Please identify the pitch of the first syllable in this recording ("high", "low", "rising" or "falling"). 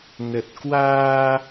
low